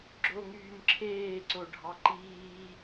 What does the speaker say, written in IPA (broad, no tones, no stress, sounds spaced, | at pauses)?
ɡ͡ǁ o ŋ yː m ǁʰ eː ǀ o ɖʱ ɑ ǃ iː